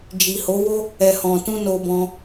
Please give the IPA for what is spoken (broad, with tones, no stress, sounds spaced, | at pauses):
d͡ʒ i˨ h o˨˦ w o˦ | ɛ˨ h ɔ̃˨ t ũ˧ n o˧ b ɔ̃˧